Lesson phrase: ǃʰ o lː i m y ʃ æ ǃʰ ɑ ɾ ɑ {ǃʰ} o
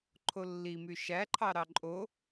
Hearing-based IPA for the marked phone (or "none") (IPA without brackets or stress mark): ǃʼ